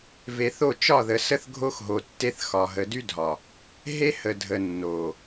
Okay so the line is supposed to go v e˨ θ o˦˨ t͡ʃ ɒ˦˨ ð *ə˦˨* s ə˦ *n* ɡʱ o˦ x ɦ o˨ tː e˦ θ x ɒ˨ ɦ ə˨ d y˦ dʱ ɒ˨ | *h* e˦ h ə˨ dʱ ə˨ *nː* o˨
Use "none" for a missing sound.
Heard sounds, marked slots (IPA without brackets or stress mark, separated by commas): ə˨, θ, ɦ, nː